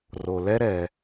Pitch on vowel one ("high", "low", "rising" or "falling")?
low